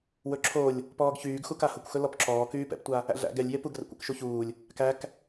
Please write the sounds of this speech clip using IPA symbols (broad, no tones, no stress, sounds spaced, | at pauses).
w ɵ ǁʰ o lʲ | p ɔː ɡ ç yː ɡ x u k a h ʊ kʷ x ɵ l ɔ p ǁ ɔː k yː p ɛ̰ p tʷ a | æ̰ ɮ æ̰ ɡ ɛ lʲ j e p u ɡ r ɛ̰ kʷ ɛ̰ k ʃ u ç uː lʲ | k æ k